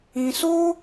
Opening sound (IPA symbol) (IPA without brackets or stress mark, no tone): ĩ